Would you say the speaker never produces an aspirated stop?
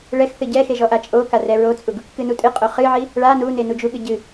yes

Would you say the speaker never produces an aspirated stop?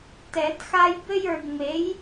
yes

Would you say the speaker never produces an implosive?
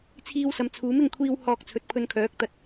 yes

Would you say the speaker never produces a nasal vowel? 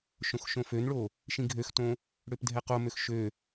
no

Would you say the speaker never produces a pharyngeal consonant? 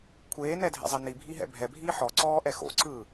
no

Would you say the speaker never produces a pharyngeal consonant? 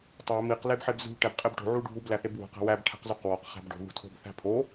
no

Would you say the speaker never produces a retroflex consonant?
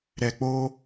yes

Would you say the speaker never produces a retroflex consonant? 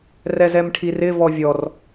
no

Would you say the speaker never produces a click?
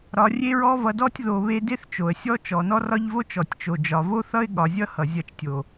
yes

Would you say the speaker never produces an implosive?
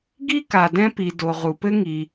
yes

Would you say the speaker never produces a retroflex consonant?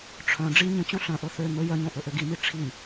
no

